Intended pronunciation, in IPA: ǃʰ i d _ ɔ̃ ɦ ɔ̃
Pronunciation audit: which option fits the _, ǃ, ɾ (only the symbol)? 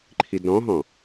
ɾ